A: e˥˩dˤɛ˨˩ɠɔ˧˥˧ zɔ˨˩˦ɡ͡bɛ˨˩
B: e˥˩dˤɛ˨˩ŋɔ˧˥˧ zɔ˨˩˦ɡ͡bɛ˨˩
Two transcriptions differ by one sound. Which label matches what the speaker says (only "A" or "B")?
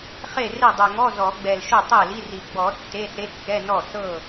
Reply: B